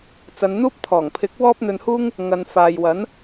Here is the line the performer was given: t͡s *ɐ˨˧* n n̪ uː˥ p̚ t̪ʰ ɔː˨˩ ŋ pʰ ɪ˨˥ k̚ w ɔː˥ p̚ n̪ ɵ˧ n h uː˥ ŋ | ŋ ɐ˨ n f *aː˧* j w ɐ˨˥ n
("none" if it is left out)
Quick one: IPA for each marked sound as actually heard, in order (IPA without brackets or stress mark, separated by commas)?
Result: ɐ˨˧, aː˨